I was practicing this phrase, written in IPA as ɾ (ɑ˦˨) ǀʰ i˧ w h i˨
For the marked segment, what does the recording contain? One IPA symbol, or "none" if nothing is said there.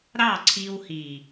ɑ˦˨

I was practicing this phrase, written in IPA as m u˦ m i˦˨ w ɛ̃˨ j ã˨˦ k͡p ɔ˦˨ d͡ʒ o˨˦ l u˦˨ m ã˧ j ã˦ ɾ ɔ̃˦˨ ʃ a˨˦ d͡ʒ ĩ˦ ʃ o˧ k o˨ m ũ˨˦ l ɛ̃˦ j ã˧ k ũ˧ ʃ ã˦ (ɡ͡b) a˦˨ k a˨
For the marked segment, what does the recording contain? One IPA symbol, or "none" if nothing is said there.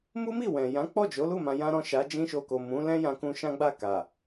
ɡ͡b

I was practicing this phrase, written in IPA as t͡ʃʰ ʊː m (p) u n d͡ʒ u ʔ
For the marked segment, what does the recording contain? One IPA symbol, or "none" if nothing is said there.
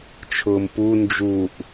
p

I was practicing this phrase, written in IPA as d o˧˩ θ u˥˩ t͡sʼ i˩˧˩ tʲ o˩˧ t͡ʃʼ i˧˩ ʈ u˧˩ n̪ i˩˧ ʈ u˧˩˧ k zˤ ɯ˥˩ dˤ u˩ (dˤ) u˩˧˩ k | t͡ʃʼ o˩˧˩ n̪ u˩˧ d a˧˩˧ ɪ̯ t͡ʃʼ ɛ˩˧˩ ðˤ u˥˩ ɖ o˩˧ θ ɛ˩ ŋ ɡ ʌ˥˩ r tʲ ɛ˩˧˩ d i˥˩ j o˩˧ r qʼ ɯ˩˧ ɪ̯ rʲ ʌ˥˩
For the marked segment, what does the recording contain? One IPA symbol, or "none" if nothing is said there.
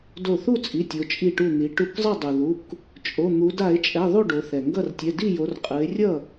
ð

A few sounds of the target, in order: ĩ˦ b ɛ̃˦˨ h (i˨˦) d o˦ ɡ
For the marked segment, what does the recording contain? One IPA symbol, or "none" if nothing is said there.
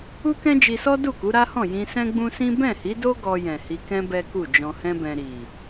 i˨˦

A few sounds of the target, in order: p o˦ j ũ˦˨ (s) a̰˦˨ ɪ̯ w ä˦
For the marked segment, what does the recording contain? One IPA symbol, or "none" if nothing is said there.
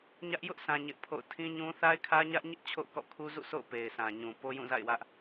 z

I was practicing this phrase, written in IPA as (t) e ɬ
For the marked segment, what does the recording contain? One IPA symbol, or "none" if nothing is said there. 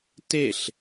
t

